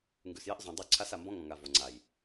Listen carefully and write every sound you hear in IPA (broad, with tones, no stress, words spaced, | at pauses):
ŋɡʉ˨sjɛ˦ʔ zˤũ˨ dˤʉ˦˨ǀʰa˦s a˨mbɔ̃˦ŋɔ̃˨ŋa˨ vo˨ŋ͡ǀa˨j